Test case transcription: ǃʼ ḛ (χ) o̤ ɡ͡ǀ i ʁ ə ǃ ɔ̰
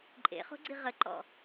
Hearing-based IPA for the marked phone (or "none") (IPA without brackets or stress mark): χ